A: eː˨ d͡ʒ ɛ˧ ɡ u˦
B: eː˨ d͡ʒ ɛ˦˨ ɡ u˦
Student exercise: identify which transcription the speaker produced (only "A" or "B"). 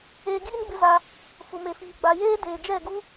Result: B